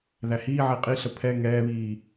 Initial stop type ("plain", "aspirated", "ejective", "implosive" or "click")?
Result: ejective